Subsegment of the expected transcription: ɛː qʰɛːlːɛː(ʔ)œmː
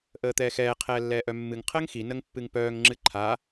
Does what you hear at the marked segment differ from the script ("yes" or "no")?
no